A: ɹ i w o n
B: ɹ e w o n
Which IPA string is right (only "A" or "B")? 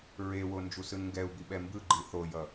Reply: B